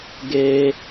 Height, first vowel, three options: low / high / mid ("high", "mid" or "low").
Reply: mid